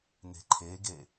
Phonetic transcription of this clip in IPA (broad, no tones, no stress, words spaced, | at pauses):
ne̤ǃʰeɡe